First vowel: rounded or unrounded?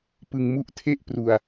unrounded